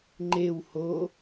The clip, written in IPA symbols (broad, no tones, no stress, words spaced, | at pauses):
ŋ͡ǃew ho